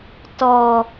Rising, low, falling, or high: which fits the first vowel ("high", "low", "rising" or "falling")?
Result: low